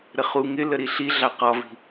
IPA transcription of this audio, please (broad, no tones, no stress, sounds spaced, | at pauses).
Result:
ɾ ə χ u ŋ ɪ l ə ɾ i ɬ i ɮ ɑ q ɒ v i̤